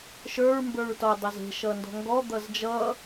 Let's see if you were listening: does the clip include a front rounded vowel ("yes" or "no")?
no